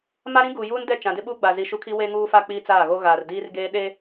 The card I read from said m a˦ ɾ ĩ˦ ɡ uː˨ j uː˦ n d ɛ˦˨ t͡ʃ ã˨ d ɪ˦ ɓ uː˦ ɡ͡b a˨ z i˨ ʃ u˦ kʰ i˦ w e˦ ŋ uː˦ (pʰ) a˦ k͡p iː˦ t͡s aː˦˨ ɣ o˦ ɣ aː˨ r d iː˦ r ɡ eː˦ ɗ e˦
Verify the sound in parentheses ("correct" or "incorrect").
incorrect